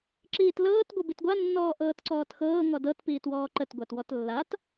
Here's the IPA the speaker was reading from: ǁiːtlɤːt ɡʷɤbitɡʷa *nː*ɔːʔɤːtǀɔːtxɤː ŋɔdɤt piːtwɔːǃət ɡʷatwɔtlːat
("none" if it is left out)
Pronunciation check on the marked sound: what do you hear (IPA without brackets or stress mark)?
nː